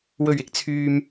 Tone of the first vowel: low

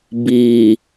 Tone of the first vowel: low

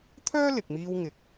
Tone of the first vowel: high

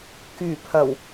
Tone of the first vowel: low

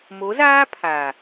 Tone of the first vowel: rising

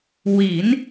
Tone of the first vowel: rising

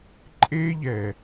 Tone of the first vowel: high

